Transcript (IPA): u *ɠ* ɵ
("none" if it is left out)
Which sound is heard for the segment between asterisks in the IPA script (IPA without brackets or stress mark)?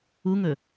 ŋ